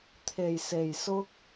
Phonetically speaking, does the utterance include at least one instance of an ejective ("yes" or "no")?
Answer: no